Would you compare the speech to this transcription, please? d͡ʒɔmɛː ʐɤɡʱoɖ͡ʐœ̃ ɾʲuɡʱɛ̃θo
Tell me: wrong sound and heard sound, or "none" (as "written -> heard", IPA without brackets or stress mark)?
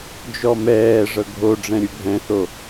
œ̃ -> ɛ̃